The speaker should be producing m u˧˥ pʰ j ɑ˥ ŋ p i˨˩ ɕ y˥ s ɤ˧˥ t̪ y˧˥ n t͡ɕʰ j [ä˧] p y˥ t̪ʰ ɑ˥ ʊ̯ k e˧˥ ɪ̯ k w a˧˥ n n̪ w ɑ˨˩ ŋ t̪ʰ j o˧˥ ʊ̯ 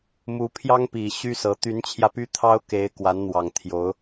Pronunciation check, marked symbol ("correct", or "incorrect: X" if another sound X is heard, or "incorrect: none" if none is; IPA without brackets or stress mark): correct